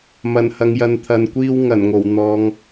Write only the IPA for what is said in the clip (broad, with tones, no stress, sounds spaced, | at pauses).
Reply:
m ɐ˨˩ n h ɐ˨ ŋ j ɐ˨˧ n t̪ʰ ɐ˨ n kʷ iː˥ w ŋ ɐ˨˩ n ŋ o˨˩ w n̪ ɔː˨˧ ŋ